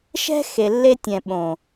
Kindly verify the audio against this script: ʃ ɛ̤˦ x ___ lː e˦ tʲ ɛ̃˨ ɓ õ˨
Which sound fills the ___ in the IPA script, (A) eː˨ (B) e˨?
B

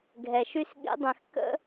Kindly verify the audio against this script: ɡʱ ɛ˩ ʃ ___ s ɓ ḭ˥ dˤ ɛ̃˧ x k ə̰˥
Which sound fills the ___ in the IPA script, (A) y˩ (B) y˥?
B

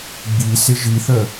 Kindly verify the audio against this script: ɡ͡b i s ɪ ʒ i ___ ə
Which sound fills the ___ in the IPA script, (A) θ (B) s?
A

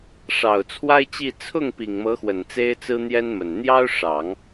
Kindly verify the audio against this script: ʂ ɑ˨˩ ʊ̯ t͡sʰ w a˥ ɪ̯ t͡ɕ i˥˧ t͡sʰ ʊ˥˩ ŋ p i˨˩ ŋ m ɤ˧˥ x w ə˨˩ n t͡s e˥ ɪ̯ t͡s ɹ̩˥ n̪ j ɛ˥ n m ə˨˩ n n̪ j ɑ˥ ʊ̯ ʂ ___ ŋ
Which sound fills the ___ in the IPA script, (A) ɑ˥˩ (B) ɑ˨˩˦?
B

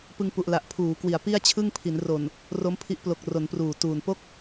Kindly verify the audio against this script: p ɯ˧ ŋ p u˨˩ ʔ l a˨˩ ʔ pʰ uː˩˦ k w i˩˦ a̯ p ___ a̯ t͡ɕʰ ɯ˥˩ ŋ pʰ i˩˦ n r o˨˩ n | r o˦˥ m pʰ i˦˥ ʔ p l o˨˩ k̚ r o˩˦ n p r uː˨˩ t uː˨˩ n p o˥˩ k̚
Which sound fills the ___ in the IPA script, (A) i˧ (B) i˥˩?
B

